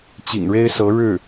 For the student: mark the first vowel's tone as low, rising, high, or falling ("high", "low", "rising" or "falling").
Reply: low